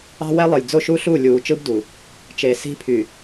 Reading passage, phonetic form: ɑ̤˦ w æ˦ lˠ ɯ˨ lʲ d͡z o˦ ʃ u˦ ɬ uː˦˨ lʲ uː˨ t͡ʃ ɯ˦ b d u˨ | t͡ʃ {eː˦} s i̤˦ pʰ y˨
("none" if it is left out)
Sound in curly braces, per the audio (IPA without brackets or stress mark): eː˨